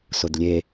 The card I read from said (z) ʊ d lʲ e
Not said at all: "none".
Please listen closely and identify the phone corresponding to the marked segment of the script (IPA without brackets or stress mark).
s